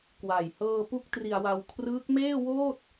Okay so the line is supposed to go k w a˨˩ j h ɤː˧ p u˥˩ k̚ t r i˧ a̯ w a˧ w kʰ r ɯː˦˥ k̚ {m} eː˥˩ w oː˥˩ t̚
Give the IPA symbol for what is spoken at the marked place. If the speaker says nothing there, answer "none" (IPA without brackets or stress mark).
m